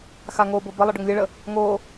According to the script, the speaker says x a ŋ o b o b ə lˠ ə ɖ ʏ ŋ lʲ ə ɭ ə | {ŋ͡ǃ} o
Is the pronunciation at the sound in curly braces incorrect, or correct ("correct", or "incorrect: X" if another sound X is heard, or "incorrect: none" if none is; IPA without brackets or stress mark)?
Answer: incorrect: ŋ